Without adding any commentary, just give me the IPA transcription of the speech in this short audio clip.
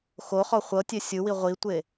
x o χ ɔ χʷ ɤ tʲ e sʲ ɯ w i ʁʷ i tʷ e

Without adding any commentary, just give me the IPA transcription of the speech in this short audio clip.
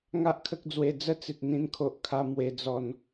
ŋ a˦ ʔ kʰ ə˦ k̚ d͡z w e˧ d͡z ə˦ t͡s i˨ t̚ n̪ ĩ˧ n kʰ o˨ ʔ kʰ a˧ m w e˧ d͡z ɔ˧ n

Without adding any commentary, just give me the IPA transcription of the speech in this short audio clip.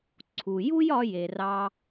ǀʰ u˨ j u˦ j ɒ˧ j e˨ r ɑ˧

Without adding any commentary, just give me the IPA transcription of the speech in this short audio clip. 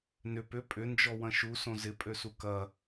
n ʏ p ʏ pʼ ʏ n d͡ʒ ɔ w ɐ̃ ʃ u s õ z ɪ pʼ ø s u k ɐ

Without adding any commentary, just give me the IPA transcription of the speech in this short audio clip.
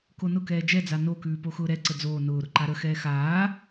k o n ʊ k ɛː d͡ʒ ɛ d͡z a n o k ʉː p o x ʊː ɾ ɛ ǀ ə d͡z oː n ʊː ɾ ʊ ǃ a ɾ ə x ɛː x aː

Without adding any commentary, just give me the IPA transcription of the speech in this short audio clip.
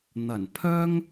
n̪ ɐ˨˩ n pʰ œː˥ ŋ

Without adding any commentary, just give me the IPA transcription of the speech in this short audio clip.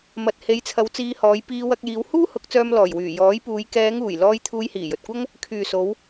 m ɐ˨ t̚ h e˨˧ j t͡sʰ ɐ˨˧ w t͡s iː˧ h ɔː˨˧ j p iː˧ w ɐ˧ k̚ j iː˨˧ w h uː˥ h ʊ˨˥ k̚ t͡s œː˧ m l ɔː˨˩ j w yː˨˩ j ɔː˨˥ j p uː˨˧ j k ɛː˨˧ ŋ uː˨˩ j l ɔː˧ j t̪ʰ uː˧ j h iː˨˩ j ɵ˨ t̚ kʷ ɐ˥ ŋ | kʰ yː˨ s o˨˧ w

